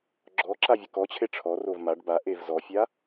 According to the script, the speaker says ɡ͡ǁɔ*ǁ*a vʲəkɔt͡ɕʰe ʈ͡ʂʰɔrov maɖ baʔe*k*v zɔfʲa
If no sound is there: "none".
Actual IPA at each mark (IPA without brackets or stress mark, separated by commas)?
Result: ǁ, none